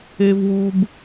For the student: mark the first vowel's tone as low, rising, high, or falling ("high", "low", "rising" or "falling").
high